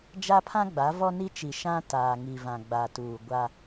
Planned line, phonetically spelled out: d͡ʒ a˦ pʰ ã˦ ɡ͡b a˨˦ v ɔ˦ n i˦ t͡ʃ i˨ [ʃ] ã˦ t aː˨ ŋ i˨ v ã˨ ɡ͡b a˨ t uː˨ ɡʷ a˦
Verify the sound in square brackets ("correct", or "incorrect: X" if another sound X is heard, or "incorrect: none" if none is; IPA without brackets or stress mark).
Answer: correct